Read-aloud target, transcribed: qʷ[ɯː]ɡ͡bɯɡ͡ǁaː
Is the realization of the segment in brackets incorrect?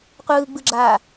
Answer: no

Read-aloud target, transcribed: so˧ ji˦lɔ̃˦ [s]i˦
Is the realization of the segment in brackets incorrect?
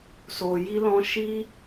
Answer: yes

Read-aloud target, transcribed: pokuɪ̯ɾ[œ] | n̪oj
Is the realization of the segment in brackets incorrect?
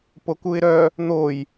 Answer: no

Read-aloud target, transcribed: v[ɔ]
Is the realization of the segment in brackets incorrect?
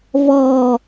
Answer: no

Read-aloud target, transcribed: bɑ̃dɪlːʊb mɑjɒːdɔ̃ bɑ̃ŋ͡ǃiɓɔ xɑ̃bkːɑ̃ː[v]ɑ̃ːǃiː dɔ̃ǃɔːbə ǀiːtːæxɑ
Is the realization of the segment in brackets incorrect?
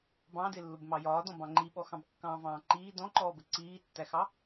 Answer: no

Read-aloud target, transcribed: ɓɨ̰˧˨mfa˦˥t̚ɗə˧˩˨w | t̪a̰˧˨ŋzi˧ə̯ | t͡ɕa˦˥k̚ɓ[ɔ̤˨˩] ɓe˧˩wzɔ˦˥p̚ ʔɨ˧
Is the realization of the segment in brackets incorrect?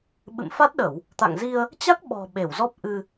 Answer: no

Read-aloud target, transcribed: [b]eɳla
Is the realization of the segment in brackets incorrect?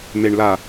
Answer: yes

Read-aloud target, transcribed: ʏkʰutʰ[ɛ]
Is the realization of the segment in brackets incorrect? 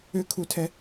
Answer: no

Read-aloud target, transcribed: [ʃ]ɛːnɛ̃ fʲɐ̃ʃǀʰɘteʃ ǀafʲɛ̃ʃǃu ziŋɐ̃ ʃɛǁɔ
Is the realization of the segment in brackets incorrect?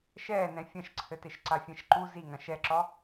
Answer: no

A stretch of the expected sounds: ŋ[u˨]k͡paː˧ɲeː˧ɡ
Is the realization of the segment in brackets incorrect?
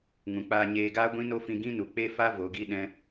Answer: yes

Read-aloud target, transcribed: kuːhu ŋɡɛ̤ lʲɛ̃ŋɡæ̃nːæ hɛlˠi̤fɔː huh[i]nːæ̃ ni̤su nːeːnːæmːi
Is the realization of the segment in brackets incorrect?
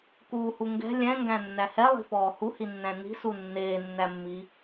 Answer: no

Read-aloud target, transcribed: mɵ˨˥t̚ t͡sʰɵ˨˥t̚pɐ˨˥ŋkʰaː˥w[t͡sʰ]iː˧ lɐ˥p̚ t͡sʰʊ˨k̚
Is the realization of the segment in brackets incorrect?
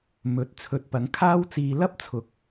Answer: yes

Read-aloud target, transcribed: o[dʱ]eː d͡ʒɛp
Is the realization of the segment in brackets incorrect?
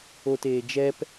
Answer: yes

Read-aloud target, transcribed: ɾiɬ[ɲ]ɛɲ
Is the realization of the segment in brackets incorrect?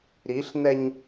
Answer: yes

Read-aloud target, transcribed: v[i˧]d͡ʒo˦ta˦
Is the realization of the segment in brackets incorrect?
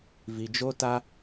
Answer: no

